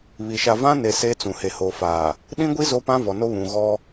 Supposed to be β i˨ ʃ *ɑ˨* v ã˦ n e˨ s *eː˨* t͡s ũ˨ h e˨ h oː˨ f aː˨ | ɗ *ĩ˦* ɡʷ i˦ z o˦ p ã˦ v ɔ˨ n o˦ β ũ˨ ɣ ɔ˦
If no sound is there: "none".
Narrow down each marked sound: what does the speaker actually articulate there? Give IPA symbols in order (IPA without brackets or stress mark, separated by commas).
a˨, eː˦, ĩ˦